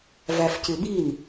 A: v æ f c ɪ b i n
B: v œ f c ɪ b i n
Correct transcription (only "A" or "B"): A